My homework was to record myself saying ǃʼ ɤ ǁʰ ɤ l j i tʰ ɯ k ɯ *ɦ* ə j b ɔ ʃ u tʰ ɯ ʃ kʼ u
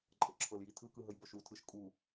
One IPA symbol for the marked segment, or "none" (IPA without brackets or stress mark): ɦ